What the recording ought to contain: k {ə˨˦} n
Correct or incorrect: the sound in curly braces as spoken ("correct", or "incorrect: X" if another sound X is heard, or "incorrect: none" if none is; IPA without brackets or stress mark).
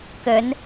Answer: correct